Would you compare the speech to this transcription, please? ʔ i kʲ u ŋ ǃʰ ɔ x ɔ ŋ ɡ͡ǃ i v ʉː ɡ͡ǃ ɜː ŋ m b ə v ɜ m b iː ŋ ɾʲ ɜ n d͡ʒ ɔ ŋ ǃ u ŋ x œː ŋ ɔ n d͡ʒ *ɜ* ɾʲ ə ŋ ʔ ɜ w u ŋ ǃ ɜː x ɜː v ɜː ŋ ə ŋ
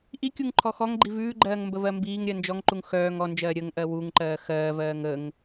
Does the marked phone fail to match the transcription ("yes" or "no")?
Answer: yes